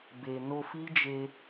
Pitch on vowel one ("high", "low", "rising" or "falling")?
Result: low